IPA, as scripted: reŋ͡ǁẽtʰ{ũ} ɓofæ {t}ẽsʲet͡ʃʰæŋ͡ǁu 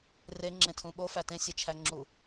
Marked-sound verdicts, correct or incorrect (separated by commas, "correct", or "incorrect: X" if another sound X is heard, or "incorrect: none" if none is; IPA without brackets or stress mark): correct, correct